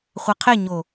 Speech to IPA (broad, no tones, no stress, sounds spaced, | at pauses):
χʷ a qʰ e ɲ o